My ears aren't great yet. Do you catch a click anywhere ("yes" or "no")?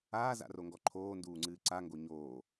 yes